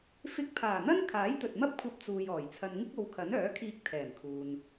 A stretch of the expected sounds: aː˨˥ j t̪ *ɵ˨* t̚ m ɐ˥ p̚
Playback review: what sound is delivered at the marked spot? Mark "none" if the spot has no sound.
ɵ˨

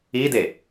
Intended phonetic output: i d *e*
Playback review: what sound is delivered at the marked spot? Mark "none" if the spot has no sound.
e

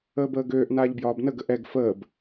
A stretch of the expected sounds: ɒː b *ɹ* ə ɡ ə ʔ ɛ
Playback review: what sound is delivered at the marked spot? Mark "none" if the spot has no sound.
n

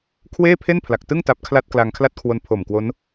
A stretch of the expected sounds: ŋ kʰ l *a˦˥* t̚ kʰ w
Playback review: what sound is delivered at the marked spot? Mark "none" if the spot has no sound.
a˥˩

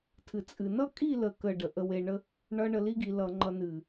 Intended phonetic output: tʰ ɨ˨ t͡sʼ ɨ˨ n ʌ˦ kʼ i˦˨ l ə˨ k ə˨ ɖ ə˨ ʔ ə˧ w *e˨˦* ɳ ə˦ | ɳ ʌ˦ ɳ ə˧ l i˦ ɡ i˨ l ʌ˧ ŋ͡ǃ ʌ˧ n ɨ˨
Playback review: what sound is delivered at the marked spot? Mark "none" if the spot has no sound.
e˨˦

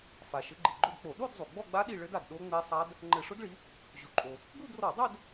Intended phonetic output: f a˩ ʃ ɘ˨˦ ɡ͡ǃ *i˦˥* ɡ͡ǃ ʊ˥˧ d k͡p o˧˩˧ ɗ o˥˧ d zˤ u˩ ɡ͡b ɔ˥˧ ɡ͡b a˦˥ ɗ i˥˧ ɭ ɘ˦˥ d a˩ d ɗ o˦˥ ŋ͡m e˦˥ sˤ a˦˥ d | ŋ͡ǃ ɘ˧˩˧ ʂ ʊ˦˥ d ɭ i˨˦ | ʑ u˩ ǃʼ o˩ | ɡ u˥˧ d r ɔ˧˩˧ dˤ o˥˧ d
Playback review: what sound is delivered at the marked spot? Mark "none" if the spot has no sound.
i˩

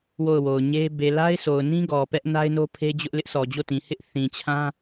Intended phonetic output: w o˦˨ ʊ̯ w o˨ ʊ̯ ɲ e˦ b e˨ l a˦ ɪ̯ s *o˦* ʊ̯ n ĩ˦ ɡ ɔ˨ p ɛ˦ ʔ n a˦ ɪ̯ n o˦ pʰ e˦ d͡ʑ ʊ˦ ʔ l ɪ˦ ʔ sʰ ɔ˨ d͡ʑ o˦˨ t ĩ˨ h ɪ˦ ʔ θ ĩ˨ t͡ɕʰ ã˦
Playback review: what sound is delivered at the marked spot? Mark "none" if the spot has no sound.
o˨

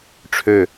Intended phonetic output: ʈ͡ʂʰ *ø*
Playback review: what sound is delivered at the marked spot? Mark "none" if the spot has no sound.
ø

